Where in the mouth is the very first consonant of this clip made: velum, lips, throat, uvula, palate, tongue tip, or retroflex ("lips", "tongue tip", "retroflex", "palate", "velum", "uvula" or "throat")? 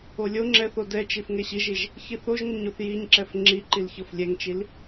tongue tip